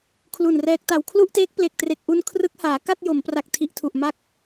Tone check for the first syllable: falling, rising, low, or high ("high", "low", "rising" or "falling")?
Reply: low